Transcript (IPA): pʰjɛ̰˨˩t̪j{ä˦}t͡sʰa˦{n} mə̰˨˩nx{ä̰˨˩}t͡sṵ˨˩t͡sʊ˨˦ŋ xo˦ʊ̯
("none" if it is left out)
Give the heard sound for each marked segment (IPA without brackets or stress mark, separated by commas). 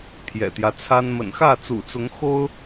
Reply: ä˦, n, ä˥˨